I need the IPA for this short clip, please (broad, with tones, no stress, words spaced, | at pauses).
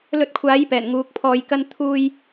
lɵ˧t̚kʷʰaː˨˥jpɛː˨˩n ŋuː˨˥k̚pʰɔː˧jkɐ˥n t̪ʰuː˧j